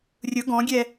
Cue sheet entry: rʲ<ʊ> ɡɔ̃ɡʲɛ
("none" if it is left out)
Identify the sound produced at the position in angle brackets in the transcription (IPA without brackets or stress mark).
ʊ